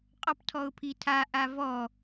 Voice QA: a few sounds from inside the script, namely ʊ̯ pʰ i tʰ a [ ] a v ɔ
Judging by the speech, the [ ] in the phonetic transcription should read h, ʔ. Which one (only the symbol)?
ʔ